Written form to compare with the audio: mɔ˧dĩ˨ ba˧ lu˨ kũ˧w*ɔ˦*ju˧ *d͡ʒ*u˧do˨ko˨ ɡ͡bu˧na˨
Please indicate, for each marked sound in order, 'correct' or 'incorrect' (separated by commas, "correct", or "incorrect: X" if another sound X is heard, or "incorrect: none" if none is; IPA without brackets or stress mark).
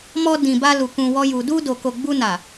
correct, incorrect: d